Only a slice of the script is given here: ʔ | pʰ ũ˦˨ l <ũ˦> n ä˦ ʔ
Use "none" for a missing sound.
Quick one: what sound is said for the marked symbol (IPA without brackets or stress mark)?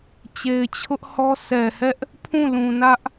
ũ˨